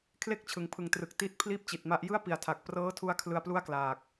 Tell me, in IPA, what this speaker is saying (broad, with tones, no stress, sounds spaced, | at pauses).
kʰ l e˥˩ k̚ t͡ɕʰ ɯ˩˦ ŋ pʰ ɯ˩˦ ŋ t r ɯ˨˩ k̚ t i˦˥ t̚ pʰ l iː˦˥ p̚ t͡ɕ i˨˩ t̚ m a˦˥ ʔ j ɯ˥˩ a̯ p i˩˦ a̯ tʰ a˨˩ k̚ p r ɤː˦˥ tʰ u˦˥ a̯ kʰ l ɯ˧ a̯ p l u˥˩ a̯ k l aː˨˩ k̚